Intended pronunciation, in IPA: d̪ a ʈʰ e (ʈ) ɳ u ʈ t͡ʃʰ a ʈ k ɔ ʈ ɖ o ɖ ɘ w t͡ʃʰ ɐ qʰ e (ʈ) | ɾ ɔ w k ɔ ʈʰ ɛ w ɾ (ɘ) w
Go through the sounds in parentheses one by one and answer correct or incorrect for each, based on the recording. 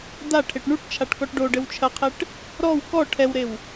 correct, correct, incorrect: e

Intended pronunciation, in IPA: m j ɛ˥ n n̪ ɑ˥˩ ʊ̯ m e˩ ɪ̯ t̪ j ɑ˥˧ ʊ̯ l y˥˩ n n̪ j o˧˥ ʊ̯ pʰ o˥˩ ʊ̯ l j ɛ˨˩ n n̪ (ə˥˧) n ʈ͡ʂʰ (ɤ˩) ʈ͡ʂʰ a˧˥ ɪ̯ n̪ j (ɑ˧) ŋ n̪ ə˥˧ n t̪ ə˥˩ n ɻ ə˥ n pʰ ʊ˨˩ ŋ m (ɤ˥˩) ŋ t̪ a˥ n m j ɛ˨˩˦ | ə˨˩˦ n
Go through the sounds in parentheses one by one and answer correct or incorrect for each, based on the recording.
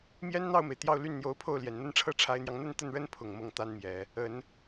incorrect: ə˥, incorrect: ɤ˥, correct, correct

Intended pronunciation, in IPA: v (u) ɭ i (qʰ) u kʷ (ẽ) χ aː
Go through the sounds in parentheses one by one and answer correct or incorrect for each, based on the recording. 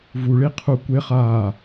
correct, correct, incorrect: e

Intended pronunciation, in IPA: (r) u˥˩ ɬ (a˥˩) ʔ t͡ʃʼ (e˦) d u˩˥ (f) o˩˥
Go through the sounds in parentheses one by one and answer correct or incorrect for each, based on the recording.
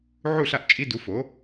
incorrect: ʕ, correct, incorrect: i˦, correct

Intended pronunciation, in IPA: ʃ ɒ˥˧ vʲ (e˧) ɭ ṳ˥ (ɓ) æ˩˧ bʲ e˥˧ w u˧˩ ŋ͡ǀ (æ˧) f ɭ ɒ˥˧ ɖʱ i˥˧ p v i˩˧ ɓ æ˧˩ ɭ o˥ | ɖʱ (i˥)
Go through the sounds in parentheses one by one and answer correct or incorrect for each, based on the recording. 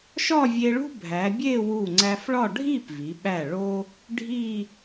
correct, incorrect: bʱ, correct, incorrect: i˥˧

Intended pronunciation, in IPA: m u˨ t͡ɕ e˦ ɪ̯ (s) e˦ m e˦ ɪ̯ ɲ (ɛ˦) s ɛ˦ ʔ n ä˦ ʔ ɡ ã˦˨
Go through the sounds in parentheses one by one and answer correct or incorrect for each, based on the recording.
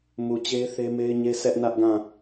incorrect: θ, incorrect: e˦

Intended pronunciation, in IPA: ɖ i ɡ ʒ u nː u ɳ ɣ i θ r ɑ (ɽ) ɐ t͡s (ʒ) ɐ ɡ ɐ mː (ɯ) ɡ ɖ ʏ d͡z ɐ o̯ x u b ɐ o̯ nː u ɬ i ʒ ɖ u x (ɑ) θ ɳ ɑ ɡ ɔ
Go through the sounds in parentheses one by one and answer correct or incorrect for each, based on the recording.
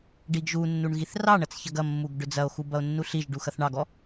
incorrect: ɳ, incorrect: ç, incorrect: u, incorrect: ɐ

